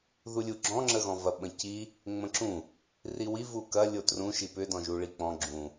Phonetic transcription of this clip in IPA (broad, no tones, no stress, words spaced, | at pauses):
ðulʲuɡ͡ǁɔ̃ ŋ͡ǁəɣɔ̃vɐɓə̃ ci | ŋ͡mə̃ǁũ | riwi vukɐ lʲotrũ ʃipʏ dɔ̃ʒuɭik͡pɔ̃ ɡ͡ǁũ